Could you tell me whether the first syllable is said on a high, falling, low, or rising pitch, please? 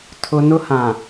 high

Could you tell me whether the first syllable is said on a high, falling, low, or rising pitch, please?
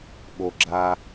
high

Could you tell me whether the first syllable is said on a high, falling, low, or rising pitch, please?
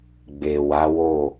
low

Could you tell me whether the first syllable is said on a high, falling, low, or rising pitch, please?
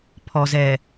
low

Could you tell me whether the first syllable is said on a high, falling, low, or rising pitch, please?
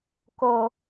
high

